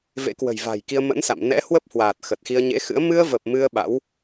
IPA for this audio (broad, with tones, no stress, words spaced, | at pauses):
vḛ˧˥kwə̤˨˩jva̤˨˩j ki˧ə̯mə̰˧˥nsa̰˧˨m nɛ̰˧˥hwə˦˥p̚hwaː˨˩t̚ xə˨˩t̚xi˧ə̯ɲḛ˧˥xɨ̰˧˥ə̯ mɨ˧ə̯və˨˩p̚ mɨ˧ə̯ ɓa̰˧˥w